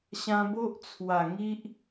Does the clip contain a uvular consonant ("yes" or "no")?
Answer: no